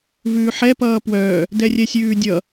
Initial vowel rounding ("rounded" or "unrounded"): rounded